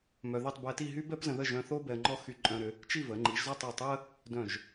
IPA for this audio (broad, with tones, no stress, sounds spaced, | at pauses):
m œ˧ ð i˥˧ tˤ b ɛ˧ t i˥˧ ɦ y˥ b ɛ˥ p z ə̃˧ ð ə˥˧ ʒ œ̃˧ θ o˥ b ɛ˧ ə̯ ŋ͡ǃ ɔ˥˧ x y˧ ǃʼ œ̃˧ ɾ ʏ˩˧ | t͡ʃ i˥˧ v ə˩˧ ŋ͡ǃ i˩˧ ʒ z ɔ˥˧ tˤ e˧˩ tˤ ʏ˥ ə̯ | d œ̃˧˩ ʒ